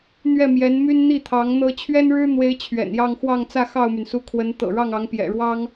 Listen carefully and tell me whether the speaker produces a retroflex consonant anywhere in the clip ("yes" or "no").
yes